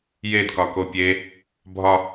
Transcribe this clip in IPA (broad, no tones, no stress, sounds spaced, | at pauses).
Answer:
j e d k ɒ k o pʲ e | bʱ ɒ